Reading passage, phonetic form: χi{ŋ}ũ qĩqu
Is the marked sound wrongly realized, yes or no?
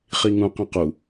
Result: no